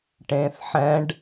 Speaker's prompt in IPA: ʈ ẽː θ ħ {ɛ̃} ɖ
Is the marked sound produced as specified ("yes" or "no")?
yes